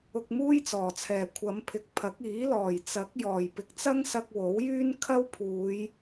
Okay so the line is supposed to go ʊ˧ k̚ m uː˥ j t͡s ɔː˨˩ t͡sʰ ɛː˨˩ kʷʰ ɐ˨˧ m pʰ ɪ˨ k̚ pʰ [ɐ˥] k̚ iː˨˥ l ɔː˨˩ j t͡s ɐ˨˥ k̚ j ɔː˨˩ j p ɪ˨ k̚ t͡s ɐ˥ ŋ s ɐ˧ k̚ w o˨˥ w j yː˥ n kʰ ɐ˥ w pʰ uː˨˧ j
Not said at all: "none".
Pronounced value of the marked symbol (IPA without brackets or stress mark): ɐ˨˥